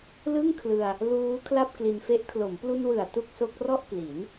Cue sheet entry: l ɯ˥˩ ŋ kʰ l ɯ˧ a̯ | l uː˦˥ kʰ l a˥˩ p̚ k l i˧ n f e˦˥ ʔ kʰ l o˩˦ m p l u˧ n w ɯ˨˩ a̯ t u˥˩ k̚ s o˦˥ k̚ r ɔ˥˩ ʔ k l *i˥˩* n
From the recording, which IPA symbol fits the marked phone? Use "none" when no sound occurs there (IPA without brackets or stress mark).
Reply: i˩˦